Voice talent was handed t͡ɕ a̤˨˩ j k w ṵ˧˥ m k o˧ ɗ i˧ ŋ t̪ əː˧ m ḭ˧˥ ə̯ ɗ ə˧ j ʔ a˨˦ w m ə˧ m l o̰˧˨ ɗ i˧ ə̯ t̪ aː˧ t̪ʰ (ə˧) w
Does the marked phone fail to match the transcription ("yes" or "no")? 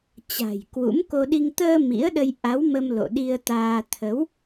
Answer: yes